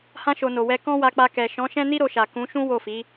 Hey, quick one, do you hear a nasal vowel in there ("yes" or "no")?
yes